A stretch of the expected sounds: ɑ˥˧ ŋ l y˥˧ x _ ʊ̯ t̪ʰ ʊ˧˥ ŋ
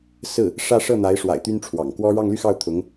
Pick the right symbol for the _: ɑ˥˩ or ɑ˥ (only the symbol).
ɑ˥˩